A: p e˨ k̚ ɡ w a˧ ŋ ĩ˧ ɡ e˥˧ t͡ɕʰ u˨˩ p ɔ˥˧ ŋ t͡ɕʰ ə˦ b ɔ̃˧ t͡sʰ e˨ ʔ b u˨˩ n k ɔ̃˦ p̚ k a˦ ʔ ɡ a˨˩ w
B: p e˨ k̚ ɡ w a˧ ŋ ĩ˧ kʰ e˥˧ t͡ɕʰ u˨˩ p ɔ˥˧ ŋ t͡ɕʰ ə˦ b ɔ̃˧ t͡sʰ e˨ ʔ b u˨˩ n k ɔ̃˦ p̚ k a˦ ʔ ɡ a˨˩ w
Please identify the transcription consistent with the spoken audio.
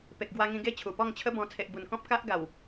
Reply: A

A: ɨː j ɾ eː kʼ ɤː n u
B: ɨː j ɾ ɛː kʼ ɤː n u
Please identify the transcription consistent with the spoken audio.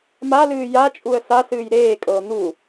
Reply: A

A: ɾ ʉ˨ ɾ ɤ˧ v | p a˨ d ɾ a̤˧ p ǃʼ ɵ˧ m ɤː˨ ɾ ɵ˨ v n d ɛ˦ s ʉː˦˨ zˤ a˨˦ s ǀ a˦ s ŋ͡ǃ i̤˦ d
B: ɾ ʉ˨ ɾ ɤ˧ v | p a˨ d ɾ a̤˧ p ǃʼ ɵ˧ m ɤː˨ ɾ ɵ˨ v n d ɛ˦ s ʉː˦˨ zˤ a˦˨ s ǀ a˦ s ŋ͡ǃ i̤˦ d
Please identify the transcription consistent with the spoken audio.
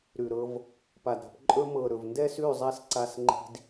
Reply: B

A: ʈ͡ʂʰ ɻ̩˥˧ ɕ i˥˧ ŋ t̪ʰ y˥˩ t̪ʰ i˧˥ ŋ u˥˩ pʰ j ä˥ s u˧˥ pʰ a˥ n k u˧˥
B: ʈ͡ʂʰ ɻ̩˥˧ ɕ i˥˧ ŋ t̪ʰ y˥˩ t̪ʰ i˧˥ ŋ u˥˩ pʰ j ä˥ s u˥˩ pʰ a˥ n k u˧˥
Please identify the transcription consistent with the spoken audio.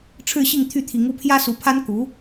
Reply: A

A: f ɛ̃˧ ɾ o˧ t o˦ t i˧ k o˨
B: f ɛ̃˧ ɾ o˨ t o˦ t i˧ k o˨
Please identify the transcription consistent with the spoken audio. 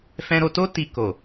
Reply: A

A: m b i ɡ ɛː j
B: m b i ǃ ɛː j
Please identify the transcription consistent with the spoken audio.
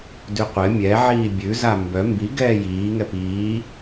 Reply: A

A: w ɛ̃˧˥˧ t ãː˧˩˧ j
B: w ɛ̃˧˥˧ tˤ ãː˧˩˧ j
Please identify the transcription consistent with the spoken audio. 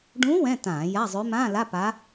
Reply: A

